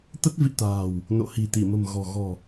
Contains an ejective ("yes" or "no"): no